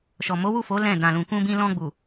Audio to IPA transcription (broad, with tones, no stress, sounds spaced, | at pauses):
ʃ ɔ˨ m o˨˦ w u˦˨ f o˨˦ l ɛ̃˦˨ d ã˨ l ũ˨ k ũ˧ b ĩ˧ l ɔ̃˧ ɡ͡b u˨